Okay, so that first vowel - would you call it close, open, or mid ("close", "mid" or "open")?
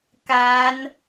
open